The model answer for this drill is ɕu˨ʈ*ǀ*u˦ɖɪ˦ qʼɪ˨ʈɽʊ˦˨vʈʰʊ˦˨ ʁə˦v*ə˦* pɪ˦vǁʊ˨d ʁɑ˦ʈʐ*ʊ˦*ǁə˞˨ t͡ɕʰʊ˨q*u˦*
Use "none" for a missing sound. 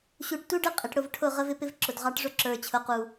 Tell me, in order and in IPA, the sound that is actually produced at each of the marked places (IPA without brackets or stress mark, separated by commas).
t, ɪ˦, ʊ˦, u˨